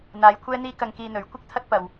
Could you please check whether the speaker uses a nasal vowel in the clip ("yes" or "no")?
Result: no